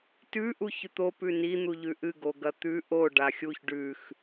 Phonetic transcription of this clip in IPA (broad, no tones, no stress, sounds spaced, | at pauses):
t ʉ ʔ u ç ʉ t̪ o p ʉ n i n̪ u ʎ ʉ ʔ ɨ ɡ o ɡ ɐ t̪ ʉ ʔ o ɖ a xʲ u ç ɖ ʉ x